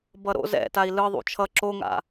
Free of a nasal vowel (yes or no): yes